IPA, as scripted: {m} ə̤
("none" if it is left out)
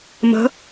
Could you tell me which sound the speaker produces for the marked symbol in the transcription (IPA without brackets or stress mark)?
m